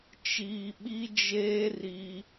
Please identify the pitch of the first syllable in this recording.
low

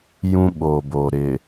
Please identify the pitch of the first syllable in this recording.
high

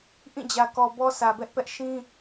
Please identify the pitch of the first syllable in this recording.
falling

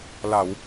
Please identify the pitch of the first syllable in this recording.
low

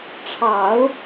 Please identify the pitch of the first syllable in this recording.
low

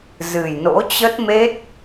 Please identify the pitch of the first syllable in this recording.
low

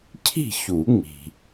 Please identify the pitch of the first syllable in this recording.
falling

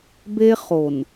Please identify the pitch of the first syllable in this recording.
high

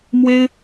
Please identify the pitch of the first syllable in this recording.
high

